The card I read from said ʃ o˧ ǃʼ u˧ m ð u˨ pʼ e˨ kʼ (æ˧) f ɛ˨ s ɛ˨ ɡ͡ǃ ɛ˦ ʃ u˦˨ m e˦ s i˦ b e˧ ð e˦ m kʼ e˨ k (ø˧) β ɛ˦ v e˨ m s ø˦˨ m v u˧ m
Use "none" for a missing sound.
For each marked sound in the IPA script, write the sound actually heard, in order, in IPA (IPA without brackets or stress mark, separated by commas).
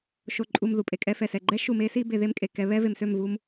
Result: ɛ˧, ɛ˧